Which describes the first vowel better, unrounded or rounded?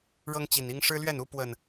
unrounded